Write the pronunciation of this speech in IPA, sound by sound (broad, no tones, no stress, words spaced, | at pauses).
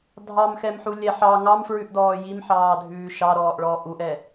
dʱɑmxɛmħulʲɛ ħɑ ŋɑmfɹʉʔdɔː jimħɑːdʱʉː ʃɑɾɔːʔɭɔːʔ uʔɛ